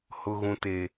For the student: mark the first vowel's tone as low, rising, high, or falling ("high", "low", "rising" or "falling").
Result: low